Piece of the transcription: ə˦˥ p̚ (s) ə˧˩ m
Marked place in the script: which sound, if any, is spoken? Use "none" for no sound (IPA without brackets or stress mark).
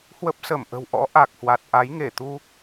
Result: s